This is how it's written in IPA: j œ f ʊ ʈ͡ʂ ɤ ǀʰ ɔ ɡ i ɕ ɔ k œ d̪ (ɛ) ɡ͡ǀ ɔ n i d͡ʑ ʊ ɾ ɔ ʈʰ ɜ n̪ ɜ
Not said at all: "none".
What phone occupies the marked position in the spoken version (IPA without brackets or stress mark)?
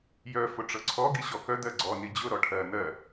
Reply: ɜ